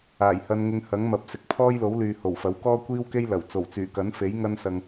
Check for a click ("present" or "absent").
absent